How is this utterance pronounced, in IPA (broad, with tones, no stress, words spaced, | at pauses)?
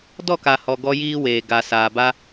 dɔ˦˨ka˨hɔ˨ ɡɔ˦jiː˦weː˨ ɡa˨ saː˨ba˦